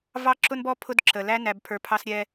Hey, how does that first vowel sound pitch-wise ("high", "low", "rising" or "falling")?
high